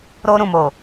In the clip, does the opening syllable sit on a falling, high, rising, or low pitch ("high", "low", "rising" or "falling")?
high